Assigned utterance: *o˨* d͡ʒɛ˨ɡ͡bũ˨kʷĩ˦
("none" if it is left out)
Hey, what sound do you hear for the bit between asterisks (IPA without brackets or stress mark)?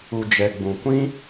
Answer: u˨